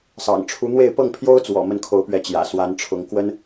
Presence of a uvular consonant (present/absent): absent